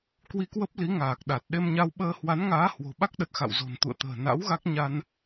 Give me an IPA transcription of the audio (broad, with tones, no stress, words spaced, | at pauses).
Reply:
kwi˧kwə˦˥p̚ li˨˦ŋaː˨˩k̚ ɗa˨˩t̚ ɗe˧mɲa˧wɓəː˧ hwa˨˦nŋaː˨˦ hwo̤˨˩ɓa˦˥k̚ɗə˨˩t̚ xa̰˧˨wzo̤˨˩nt̪ṵ˧˨ə̯t̪ə̤ː˨˩ na̰˧˥w ɣa˦˥k̚ ɲa˧n